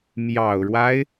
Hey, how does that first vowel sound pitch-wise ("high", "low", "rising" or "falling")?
low